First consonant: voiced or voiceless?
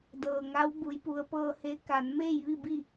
voiced